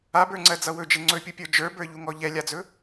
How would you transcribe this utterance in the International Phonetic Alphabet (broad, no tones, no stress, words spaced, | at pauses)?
abə˞ŋ͡ǀɜd͡zʌ wɵd͡ʒe ŋ͡ǀɵpʲupʲə˞ d͡ʒə˞bə˞ʎuŋɔ ʎɛlʲad͡zɵ